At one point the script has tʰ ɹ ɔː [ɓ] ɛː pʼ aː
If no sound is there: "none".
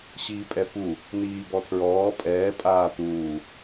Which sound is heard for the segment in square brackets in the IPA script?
pʼ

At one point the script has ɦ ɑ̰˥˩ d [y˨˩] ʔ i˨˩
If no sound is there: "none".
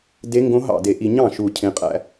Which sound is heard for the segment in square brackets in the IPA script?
e˨˩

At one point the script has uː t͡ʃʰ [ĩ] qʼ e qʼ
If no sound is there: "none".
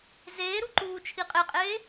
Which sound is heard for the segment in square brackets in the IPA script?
i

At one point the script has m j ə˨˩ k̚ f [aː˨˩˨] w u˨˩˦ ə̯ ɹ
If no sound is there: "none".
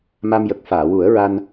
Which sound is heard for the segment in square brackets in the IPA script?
aː˨˩˨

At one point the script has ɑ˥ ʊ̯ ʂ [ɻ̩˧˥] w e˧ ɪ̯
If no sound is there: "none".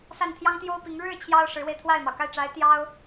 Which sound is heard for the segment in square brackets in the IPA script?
ɻ̩˧˥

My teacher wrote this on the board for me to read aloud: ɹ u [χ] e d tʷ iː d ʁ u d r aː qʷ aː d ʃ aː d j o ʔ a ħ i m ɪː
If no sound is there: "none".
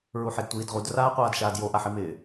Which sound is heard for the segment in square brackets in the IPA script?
ħ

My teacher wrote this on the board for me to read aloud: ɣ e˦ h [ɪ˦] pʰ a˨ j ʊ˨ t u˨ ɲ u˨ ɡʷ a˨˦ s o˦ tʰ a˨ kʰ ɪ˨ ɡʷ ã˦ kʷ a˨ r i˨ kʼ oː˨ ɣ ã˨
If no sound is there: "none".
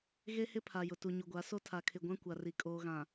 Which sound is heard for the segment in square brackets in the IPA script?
ɪ˦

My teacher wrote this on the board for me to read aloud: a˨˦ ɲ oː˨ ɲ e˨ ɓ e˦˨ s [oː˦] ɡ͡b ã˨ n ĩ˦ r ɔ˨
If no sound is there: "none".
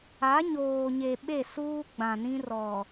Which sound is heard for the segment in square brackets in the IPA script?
uː˦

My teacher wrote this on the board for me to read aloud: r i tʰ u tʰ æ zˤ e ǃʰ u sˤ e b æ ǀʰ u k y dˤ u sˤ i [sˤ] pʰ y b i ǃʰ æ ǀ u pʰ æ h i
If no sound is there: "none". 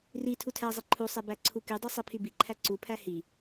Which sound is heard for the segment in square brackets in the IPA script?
none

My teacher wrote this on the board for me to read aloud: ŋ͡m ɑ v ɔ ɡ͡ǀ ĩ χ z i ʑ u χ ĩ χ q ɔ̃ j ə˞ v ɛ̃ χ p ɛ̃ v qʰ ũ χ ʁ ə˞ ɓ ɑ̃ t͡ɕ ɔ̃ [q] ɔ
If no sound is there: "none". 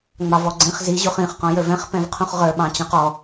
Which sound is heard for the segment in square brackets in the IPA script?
q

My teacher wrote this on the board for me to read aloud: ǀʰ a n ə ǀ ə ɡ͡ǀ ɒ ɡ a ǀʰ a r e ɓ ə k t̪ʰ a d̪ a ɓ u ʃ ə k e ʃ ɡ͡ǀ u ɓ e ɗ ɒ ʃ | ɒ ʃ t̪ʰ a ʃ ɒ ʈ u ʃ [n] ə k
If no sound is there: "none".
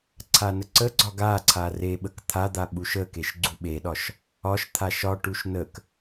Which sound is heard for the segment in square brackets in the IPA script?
n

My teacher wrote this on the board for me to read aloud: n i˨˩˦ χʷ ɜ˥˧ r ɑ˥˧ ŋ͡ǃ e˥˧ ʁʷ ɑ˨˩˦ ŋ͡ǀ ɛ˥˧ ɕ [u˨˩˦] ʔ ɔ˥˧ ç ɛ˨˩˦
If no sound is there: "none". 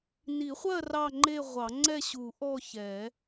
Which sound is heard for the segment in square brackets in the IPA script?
u˨˩˦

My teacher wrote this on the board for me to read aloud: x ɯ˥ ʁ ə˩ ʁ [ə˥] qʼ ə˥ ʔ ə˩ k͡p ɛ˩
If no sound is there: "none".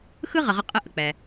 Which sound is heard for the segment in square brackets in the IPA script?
ə˥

